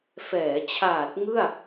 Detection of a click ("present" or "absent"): absent